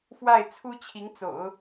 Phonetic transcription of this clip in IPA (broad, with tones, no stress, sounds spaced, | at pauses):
f w a˥˩ ɪ̯ t͡sʰ u˥ t͡ɕʰ i˧˥ ŋ t͡s o̰˨˩˦ ʊ̯